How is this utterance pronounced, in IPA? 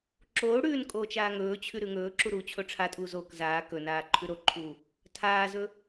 ǁoːɽʉːn kʼoːt͡ʃaːŋɵːt͡ɕʰʉ ɾʉŋɵːǁu ɾuːt͡ɕʰoʈ͡ʂʰatʼuː zok zaː kɵnaː ǃʰʉɾoǃʰuː | tʰaːzɵ

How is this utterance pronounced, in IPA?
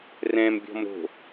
rɛ̃mbʲɔ̤m ɾo̤

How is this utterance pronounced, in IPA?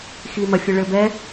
ximɐfʲɨ ɭɘ bɛ

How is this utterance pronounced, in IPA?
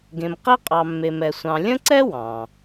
ɡẽ˧mqi˥qʼɑ˧ mːe˧mɛ˧sʷɑ̃˧ lʲə̃˥ǀɛ˥ wɑ̃˩

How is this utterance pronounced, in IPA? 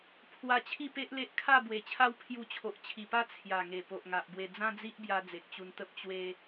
pʰwa˧ t͡ɕʰi˥˧pe˦ʔle˦ʔ kʰa˥˧ bwe˨˩t͡ɕʰa˦w pʰju˧t͡ɕʰo˨ʔt͡ɕʰi˨˩pa˥˧ t͡sʰja˨˩ŋe˨˩ po˨ʔŋa˨ʔbwe˧ d͡zã˦d͡zi˦ʔbja˧ d͡ze˨k̚t͡ɕu˧nt̪ə˦p̚ t͡ɕwe˧

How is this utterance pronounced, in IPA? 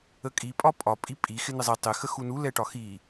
əkʼi pʼɒpʼɒ pʼipʼi xɪnɪzˤi tˤɪ xəxunu lɛʈɒxi

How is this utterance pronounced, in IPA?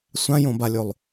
sʷãjõbalʲolˠ

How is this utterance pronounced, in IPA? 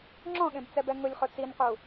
ŋ͡ǁɔ̃ɠẽbt͡sɛbɛ ŋʊlʲχʊ t͡sinqu

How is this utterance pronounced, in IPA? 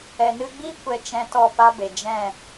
ɛ˨nɨ˧ɡ͡bi˦ kʷɛ˧ t͡ʃɛ̃˦ tɔ˦˨ pa˦be˨ d͡ʒɛ̃˦˨

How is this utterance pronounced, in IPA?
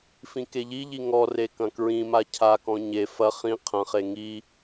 fĩkeʎiʎi ŋɔre kɐ̃kɹĩma cʰakɔ̃ ɲe fɐ χĩ qʰɐ̃χe ŋi

